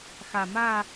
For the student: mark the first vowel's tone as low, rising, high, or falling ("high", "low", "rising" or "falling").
low